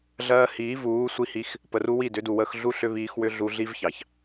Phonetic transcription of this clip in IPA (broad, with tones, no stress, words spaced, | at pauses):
ɮɜː˧hiː˨˦vuː˨˦ sʷi˧hi˧x | pə˨ru˧ wi˦˨dʏ˨˦du˨wəː˧x ɮu˦ ɬʏ˦βiː˧xwʏ˦ ɮu˧ɮi˦vçɑ˨ç